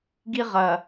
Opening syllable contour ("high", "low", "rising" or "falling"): high